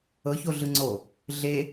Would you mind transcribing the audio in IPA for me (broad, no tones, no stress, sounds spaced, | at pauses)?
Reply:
ɤ ç o ɮ ɯ ŋ͡ǀ o | ɮ e